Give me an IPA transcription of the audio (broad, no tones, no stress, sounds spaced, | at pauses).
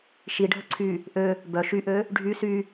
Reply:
ʃ i ɖʱ ə ǀʰ y | ʔ ø | b œ ʃ y ʔ ø | ɖʱ y s y